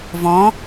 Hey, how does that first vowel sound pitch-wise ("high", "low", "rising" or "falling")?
rising